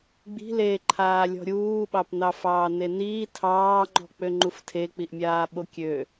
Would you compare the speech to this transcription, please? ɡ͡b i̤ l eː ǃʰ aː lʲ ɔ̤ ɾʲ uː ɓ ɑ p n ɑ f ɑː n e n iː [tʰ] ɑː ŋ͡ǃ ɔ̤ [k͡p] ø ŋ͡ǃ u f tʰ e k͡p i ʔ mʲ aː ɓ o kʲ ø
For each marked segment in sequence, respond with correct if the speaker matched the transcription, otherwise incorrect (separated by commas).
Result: correct, correct